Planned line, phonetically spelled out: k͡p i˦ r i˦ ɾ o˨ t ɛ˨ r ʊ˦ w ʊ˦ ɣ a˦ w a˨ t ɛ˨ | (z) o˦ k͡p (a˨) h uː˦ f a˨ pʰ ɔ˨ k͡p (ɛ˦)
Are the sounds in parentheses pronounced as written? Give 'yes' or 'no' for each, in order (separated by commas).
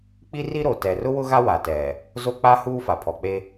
yes, no, no